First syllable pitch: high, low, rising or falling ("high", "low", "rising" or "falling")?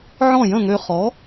falling